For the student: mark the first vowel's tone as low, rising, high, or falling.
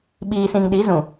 low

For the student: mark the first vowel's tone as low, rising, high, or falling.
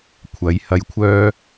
rising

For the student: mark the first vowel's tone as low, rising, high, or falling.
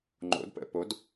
rising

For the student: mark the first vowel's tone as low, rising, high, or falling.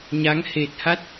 rising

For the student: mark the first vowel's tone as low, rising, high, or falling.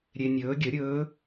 low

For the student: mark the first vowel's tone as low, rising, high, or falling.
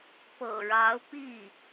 low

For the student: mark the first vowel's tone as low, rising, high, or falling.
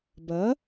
rising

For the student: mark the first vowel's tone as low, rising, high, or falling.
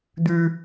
high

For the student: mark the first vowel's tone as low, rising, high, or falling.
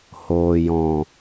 low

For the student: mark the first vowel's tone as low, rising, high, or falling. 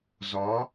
rising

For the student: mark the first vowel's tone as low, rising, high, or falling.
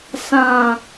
low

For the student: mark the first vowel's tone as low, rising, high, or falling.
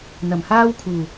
low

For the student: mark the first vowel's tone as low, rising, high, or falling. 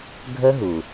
high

